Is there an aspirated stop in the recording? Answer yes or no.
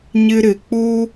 no